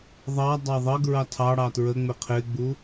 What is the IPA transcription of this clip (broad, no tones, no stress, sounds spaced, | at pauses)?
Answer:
ðˤ ɑ dˤ ɑ ðˤ ʌ ɡ ɹ ɑ tʰ ɑ ɽ ɑ t ɹ ə ŋ͡m ɪ qʰ ɪ ɡ͡b u